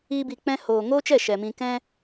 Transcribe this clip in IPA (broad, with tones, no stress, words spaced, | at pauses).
iː˦bi˧k͡pɛ̃˦ hoː˨ŋoː˦t͡ʃɛ˦˨ ʃɛ˨mĩ˧ kɛ̃˦